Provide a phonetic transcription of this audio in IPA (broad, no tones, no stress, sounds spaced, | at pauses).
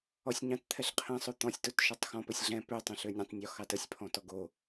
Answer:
ɔ sʲ ɲ ɑ̃ t t̪ʰ ɛ ɬ qʰ ɛ̃ sˤ o t̪ ɔ̃ sʲ t o t ʃ ɔ tˤ x ɔ̃ p ɘ sʲ ɮ ɛ̃ p ø tˤ ɛ̃ ɬ ø nʲ ɛ̃ tˤ nʲ ɔ x ɑ t ə sʲ pʰ ɔ̃ t ɔ ɡ o